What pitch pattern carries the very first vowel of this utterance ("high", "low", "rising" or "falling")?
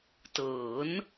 rising